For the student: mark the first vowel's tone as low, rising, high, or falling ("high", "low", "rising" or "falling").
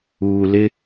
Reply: low